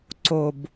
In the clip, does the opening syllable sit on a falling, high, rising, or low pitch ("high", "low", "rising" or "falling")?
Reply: low